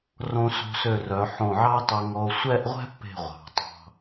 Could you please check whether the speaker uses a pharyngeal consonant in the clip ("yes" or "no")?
yes